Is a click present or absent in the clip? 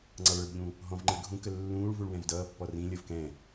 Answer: present